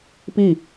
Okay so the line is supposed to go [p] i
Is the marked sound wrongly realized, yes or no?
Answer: no